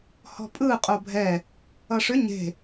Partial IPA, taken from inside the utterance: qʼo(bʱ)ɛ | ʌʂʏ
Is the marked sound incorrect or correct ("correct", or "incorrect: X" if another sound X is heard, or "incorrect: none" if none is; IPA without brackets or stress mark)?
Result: correct